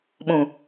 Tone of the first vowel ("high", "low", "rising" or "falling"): low